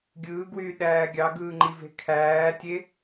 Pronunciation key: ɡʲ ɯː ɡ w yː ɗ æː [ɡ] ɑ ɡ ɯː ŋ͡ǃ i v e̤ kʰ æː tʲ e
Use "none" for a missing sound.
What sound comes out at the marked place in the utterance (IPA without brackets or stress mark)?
ɡʲ